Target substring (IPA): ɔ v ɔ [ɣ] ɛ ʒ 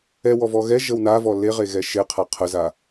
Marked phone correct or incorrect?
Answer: correct